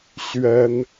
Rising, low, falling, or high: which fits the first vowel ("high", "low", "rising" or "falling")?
high